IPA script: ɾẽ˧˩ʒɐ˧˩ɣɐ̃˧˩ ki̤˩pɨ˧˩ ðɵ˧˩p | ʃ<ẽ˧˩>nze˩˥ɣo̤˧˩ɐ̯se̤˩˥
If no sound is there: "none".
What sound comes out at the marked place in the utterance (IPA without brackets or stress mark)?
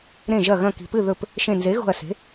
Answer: ẽ˧˩